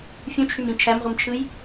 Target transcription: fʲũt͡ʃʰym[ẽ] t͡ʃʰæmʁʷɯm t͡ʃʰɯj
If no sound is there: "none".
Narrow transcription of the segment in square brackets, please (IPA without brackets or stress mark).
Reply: ĩ